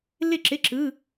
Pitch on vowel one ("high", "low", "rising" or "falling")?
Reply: falling